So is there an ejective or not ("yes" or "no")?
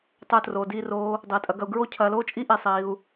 yes